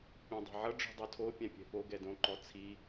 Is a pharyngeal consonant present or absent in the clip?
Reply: present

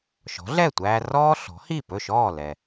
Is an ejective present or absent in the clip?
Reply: absent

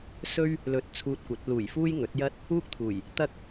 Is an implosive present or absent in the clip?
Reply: absent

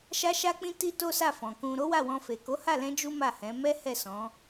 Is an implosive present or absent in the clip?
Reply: absent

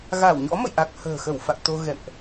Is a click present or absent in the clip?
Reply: absent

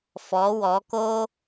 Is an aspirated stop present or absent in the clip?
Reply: absent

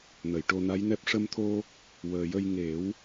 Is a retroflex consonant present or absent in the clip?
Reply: present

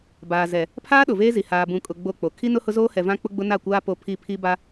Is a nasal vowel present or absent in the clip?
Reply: present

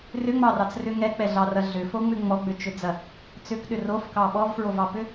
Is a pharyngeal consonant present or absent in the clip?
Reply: absent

